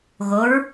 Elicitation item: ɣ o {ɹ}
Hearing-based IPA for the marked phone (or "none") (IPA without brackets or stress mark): ɹ